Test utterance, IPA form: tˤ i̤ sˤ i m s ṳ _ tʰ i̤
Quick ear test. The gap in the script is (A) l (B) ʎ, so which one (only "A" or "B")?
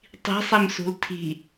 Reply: A